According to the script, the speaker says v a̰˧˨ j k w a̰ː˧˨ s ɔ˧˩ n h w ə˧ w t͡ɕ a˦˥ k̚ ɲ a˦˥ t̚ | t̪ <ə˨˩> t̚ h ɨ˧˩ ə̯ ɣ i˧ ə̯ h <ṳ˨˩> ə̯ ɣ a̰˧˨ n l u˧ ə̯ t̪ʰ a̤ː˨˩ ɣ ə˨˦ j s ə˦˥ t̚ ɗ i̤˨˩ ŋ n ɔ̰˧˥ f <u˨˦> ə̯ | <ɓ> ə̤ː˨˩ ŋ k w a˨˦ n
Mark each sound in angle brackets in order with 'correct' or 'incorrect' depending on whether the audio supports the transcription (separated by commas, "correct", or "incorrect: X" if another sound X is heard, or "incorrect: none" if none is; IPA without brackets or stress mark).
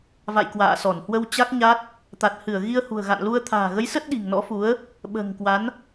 incorrect: a˨˩, correct, correct, correct